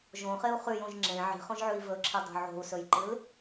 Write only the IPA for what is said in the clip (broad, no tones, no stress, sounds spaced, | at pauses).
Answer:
ʒ õ χ e u̯ χ ʉ j õ ʒ ŋ͡ǁ ẽ ʕ i̤ χ õ ʒ ʕ ʉ i̯ v ɵ ǁʰ i dˤ o̤ ʕ o̤ u̯ s ɵ j ǃ ɨ l